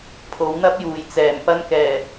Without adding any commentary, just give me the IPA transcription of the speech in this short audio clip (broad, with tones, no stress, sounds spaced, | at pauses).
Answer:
pʰ o˨˥ w n̪ ɐ˥ p̚ j uː˨˩ j t͡s ɛː˨˩ m p ɐ˧ n k ɛː˨˩